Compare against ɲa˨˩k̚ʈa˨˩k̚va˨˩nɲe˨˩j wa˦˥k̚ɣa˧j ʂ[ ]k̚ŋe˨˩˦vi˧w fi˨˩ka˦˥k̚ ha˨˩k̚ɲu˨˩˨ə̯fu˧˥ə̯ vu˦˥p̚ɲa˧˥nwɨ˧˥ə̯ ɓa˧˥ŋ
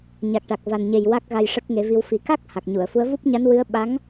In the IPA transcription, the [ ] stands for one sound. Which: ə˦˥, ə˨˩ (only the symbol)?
ə˦˥